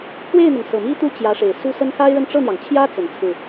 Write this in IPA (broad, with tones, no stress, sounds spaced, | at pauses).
pʰ w e˥˩ ɪ̯ n̪ ʊ˩ ŋ s ɤ˨˩ m i˥ t̪ u˥˩ t͡ɕ j ä˧˥ ʂ e˨˩ ɪ̯ s u˥ s ə˥ n x a˥ ɪ̯ ɻ ə˥˧ n ʈ͡ʂ ɤ˥˩ n̪ j ɑ˩ ŋ t͡ɕʰ j ä˥ t͡s ə˨˩ n t͡sʰ ɹ̩˥˩